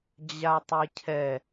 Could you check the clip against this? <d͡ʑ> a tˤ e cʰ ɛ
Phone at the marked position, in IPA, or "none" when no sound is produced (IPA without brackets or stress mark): d͡ʑ